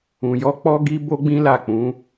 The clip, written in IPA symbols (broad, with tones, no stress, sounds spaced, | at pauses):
ũ˨ j ɔ˧ k͡p ɔ˦ ɡ i˦ b o˦ ɡ͡b ĩ˦ l a˦˨ k͡p ũ˨˦